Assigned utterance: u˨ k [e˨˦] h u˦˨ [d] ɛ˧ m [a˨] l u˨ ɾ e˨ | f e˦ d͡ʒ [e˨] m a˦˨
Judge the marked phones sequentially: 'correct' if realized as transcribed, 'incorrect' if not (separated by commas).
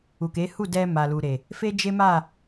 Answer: correct, correct, correct, incorrect